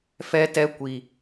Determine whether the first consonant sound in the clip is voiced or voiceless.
voiceless